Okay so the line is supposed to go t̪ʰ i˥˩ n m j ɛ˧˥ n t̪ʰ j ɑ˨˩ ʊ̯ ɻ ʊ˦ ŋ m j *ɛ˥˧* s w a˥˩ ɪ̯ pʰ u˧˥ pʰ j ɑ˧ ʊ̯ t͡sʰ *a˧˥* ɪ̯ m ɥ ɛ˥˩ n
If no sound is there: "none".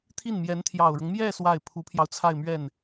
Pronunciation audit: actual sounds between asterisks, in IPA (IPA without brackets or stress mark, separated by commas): ɛ˥˧, a˥˧